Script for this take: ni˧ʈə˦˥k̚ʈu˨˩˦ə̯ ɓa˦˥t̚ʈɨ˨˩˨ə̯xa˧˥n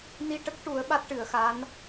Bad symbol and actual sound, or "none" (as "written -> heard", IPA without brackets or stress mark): none